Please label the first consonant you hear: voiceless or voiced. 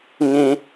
voiced